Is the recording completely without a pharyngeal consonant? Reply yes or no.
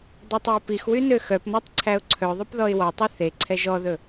yes